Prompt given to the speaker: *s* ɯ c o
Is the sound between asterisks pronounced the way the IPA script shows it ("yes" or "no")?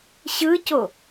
no